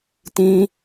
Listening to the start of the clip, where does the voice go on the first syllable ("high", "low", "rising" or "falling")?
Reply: high